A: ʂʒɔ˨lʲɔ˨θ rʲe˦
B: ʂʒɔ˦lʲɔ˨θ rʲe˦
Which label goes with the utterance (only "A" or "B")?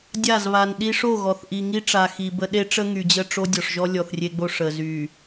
B